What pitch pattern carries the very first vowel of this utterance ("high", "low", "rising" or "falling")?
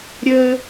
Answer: high